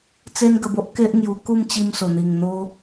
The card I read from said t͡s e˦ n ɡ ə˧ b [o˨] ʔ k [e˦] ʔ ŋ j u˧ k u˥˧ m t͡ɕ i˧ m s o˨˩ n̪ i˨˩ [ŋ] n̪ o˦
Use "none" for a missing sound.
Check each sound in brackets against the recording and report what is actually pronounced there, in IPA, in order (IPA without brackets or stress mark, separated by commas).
o˦, e˦, ŋ